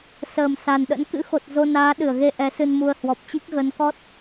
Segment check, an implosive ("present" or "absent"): present